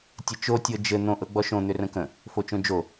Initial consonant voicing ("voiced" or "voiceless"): voiceless